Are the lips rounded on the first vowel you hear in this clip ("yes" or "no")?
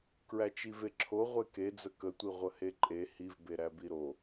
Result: no